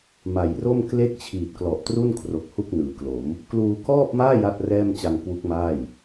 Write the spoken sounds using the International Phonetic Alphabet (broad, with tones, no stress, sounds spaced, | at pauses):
m a˨˩ j r o˥˩ m k l e˥˩ k̚ t͡ɕʰ iː˨˩ t̚ k l ɔ˨˩ ʔ t r u˥˩ n kʰ r o˨˩ k̚ h u˥˩ k̚ n ɯː˩˦ k l o˩˦ m | k l uː˧ k ɔː˥˩ p̚ m aː˥˩ j a˥˩ t̚ r ɛː˥˩ m t͡ɕ a˧ ŋ k w u˦˥ k̚ m aː˥˩ j